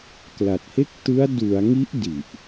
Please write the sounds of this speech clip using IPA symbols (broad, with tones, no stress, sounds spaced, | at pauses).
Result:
k l a˨˩ t̚ h e˥˩ k̚ t ɯ˦˥ a̯ d u˩˦ a̯ ŋ i˦˥ ʔ d i˨˩ ʔ